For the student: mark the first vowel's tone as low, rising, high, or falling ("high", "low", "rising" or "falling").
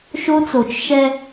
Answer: high